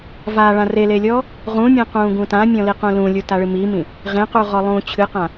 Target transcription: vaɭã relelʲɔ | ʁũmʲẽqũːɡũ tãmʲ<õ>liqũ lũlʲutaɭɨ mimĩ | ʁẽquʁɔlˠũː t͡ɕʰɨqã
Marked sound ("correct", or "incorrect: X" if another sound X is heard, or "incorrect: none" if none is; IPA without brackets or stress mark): incorrect: ɔ̃